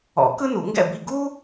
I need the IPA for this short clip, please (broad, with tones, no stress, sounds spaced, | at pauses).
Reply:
ɔ̰˨˩˦ k ɯ˥ n u˨˩˦ ŋ ɡ ɛ̰˥˨ b i˥˨ ɡ u˥